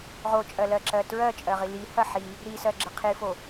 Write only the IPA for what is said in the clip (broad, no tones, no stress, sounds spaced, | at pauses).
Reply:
ʁ o t͡ʃʼ ɜ l ɜ ǁ ɜ t ɹ ɜ t͡ʃʼ ɜ ʁ i l i h ɐ ħ i | ɾ i s ɜ ɡ͡ǁ ə qʰ i f o